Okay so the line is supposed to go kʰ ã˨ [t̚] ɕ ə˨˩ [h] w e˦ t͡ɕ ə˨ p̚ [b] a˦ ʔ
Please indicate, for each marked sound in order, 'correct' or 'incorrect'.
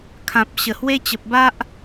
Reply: incorrect, correct, correct

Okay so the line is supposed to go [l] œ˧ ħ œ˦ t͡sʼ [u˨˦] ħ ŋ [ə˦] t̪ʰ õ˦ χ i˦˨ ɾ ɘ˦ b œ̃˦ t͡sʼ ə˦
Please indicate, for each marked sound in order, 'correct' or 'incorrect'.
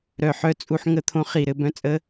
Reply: incorrect, incorrect, correct

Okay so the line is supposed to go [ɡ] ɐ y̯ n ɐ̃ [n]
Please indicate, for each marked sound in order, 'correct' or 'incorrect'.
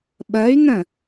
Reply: incorrect, incorrect

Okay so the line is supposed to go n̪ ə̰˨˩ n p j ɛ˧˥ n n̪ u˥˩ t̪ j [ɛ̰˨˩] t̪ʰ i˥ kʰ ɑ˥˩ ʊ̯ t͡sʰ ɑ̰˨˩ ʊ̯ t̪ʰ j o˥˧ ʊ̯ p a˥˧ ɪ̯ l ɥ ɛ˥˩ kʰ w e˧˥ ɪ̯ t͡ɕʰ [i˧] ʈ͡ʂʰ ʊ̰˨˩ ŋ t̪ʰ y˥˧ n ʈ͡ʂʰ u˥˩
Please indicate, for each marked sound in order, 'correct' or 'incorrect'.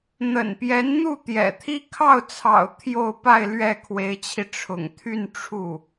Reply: correct, correct

